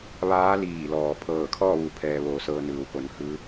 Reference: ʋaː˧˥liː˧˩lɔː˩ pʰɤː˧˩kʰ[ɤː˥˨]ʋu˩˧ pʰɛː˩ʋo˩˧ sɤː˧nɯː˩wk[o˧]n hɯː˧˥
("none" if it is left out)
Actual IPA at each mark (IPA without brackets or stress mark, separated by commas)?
ɔː˥˨, o˩˧